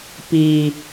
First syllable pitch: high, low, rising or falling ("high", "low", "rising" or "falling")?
low